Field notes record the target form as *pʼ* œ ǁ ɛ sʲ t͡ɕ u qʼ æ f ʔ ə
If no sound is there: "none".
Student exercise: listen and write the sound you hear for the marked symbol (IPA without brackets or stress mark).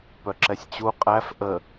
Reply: p